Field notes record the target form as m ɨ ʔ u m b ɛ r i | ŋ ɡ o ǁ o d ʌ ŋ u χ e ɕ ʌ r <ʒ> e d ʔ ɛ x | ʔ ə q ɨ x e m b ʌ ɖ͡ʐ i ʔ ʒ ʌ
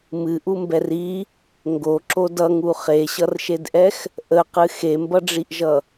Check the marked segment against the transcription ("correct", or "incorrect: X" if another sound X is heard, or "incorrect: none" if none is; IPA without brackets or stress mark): incorrect: ʃ